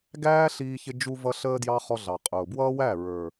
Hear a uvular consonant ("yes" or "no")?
yes